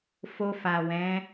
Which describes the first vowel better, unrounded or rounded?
rounded